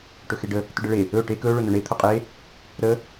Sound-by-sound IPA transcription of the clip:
ʈ ɵ x e ɖ ə | t ɵ ɖ ə ɭ e | ɵ ʈ e k ɵ ɭ ɵ n ɵ ɳ e t̪ʰ o qʼ e | ɾ ə

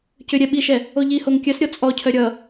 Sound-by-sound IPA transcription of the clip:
c ʏ ɾʲ ɛ ɓ i ʃ ɛ | o ʎ i h o ŋ kʲ œ s ɾʲ ɔ t͡sʼ ɔ cʰ œ ɾʲ ʌ

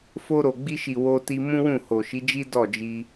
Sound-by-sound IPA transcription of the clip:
f o˧ ɾ o˨ ɡ͡b i˧ ʃ i˨ w o˧ t i˧ m ũ˦ w ũ˦˨ h o˨ ʃ i˨˦ d͡ʒ i˦ d ɔ˦˨ d͡ʒ i˧

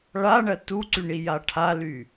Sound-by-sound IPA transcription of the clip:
ɭ a ɳ ɜ t u ǀ y ɳ i j a ʈʰ a l y

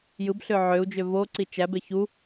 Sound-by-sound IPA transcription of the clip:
j ɯ b ɬ ø ʕ ø u̯ d͡ʒ ø v o ǀ i t͡ʃ æ b e ç u

